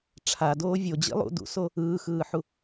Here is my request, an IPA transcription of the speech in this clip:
ʈ͡ʂʰ a d oː vʲ o d͡ʑ ḭ lˠ ṵ d ṵ s o | ɯː x ɯː ħ u

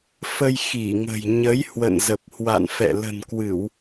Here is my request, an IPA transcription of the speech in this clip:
f ə˧ j x i˧˩ ŋ ə̤˨˩ j ɲ ə˨˦ j h w ə̰˧˨ n z ə˨˩ p̚ h w a̰˧˨ n f ɛ̰˧˨ l ə̤˨˩ n k w ɨ˧˩˨ w

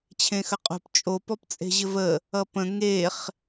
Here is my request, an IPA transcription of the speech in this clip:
t͡ɕʰ ẽ x ə qʼ o̤ p t͡ʃʼ o p ɔ p t͡sʼ e̤ ʑ ɘ v ə | ʌ p ə̃ ŋ e χ

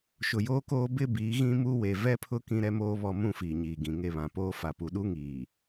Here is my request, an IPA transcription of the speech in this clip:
ʃ ʊ˨ j oː˦ k oː˦ b ɪ˦ b iː˨˦ ɣ ĩ˦ m u˦ w e˨ v ɛ˦ pʰ ʊ˦ k ĩ˦ ɾ ɛ˦ m oː˦ β ɔ˨ m ũ˦˨ f iː˨ ɲ iː˨ ɡ ĩ˨ ŋ e˦˨ β ã˨ p oː˦ f a˨ p u˨ ɗ u˦ ŋ iː˨

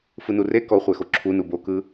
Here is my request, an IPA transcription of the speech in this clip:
f ɯ n u r e k ɔ χʷ ɛ x o ǁʰ u n u b o k ɯ

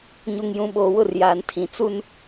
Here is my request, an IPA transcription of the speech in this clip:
ɲ u˨ ŋ j ũ˨ ɓ oː˨ w ʊ˦˨ r j aː˨ n tʰ ĩ˨ t͡s u˦ n

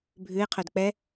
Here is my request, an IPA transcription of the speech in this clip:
bʱ ʉ ɪ̯ qʰ œ d k͡p ɛ

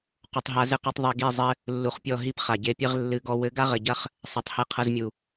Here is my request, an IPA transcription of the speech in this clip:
q u˨ tˤ ɦ a˧ z ɘ˦ q ɛ˧ tˤ ðˤ i˨ ɡ i˦˨ zˤ ɘ˦ | lː u˧ χ pʲ ɔ˦˨ ɦ i˦ p χ a˨ ɟ e˧ pʲ ɘ˦ ʁ lː ɨ˨˦ ɡ ɔ˧ w ɘ˨˦ ɡ a˦ ʁ ɘ˨ ɟ ɐ˦ χ | sˤ ɛ˨ tˤ h e˧ qʰ ɐ˧ z mʲ u˨

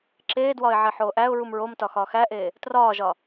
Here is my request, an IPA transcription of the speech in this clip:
ǁ eː d w ɒ ɪ̯ ʕ i ħ oː ʔ æ ʊ̯ ɹ u m ɹ o m t ɒ x ɒ x æ ʔ e | t r ɒː ʒ ɒ

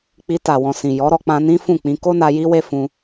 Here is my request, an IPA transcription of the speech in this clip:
k͡p i˧ t a˨ w ɔ̃˨ s ĩ˨ j ɔ˨˦ ɾ ɔ˧ k͡p ã˧ n ĩ˦ f ũ˦˨ k͡p ĩ˧ k o˦ n a˧ j i˦ w e˦ f ũ˧

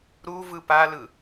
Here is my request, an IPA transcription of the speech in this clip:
ɾ u v ɯ p a l ɯ

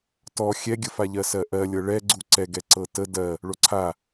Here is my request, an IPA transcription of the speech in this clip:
t ɔ xʲ ɛ ɡʲ ə f a ʎ ɜ s ɜ ʔ ɜ lʲ ɤ ɭ ɛ ɡ͡ǀ u ǀ ɛ ɡ ɛ ǀ ɤ t ə d ɜ | ɭ o ǀʰ a

